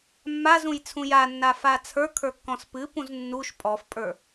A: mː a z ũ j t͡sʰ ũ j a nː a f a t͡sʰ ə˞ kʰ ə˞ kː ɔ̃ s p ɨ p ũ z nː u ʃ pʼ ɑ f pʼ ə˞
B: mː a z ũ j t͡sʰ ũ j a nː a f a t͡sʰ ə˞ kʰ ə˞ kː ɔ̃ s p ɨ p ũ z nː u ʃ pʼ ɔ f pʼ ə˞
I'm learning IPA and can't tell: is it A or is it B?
B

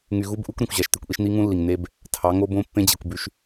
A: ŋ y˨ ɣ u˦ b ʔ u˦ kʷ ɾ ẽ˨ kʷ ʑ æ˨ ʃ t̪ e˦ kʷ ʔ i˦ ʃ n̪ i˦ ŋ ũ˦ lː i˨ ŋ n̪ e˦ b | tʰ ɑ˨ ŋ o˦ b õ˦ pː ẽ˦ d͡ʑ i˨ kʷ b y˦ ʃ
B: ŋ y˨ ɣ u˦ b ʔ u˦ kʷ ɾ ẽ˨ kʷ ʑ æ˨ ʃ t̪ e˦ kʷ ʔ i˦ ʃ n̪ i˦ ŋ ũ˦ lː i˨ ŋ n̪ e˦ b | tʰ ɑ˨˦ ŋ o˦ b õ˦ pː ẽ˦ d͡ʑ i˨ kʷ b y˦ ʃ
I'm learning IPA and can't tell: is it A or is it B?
B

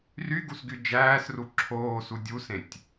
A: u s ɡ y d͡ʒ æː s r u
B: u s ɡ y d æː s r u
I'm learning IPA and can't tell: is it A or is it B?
A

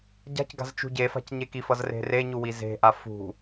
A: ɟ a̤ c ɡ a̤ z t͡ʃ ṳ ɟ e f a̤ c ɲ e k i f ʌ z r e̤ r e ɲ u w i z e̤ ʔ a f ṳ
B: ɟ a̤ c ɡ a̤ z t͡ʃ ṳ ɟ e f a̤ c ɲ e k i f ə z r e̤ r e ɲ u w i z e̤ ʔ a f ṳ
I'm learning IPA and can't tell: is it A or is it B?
A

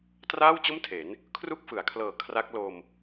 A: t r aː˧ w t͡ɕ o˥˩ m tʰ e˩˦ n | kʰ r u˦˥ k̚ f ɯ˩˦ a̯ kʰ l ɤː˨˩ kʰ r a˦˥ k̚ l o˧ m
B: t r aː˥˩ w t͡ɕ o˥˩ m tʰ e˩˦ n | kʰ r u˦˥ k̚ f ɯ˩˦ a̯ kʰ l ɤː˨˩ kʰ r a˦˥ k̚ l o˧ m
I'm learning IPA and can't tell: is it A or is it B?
B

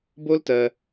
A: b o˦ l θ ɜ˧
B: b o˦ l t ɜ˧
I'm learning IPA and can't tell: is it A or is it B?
B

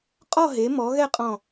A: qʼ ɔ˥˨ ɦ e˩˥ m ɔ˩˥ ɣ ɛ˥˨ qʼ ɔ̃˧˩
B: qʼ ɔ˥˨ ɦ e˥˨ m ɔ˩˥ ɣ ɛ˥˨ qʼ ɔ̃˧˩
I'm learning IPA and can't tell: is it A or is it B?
A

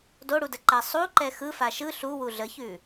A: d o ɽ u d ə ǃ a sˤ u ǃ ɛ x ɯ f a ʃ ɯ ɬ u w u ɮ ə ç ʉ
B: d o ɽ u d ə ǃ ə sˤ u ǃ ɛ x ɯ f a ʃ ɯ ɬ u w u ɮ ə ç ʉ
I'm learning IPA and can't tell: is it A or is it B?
A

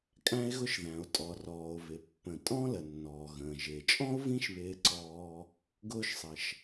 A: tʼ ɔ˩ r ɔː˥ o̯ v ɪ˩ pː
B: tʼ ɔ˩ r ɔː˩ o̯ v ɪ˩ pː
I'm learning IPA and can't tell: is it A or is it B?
B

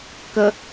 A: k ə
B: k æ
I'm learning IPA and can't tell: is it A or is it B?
A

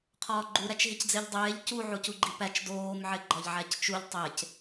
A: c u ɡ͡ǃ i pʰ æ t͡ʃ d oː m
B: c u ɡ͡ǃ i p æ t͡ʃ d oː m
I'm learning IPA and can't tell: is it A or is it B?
B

